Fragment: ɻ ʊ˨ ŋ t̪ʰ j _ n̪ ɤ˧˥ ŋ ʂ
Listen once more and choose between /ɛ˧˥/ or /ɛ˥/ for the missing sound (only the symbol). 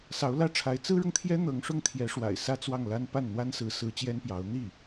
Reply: ɛ˥